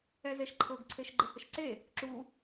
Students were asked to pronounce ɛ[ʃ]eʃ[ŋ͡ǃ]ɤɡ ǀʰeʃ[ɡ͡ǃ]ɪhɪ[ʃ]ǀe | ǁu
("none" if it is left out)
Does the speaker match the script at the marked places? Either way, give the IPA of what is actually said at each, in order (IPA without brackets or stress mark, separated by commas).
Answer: z, ǃʰ, ɡ͡ǃ, ʃ